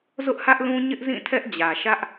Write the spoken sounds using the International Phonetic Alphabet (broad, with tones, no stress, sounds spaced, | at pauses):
z ʊ˦ ʔ h ä˦ ʔ l ũ˦ ɲ ɪ˦ ʔ z ĩ˦˨ tʰ ɛ˦ ʔ d͡ʑ ä˨ ʃ ä˦ ʔ